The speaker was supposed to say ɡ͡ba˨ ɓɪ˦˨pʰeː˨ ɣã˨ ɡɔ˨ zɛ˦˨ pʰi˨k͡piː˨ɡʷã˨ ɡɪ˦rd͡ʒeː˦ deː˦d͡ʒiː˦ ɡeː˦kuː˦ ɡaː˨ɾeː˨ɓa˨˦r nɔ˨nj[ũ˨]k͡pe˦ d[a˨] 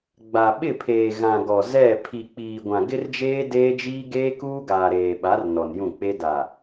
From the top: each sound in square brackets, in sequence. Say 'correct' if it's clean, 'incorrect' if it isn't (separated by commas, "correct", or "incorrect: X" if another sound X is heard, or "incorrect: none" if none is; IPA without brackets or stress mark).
incorrect: ũ˦˨, correct